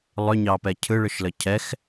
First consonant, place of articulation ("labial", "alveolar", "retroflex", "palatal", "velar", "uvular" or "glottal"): alveolar